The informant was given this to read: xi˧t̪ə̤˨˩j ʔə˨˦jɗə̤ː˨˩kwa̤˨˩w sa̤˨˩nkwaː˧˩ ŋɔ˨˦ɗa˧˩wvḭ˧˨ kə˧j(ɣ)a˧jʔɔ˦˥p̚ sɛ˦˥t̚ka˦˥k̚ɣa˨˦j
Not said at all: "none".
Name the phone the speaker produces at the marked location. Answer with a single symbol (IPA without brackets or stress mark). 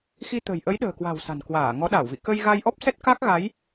ɣ